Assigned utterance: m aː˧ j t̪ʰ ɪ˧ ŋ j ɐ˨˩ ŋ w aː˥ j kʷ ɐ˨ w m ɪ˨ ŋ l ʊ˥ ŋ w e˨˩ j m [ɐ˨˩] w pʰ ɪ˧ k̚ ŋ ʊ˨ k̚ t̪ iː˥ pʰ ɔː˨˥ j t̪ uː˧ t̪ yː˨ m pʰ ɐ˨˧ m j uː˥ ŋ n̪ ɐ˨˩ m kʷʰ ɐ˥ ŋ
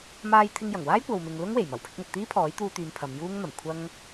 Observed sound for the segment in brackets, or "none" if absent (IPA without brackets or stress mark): ɐ˨˩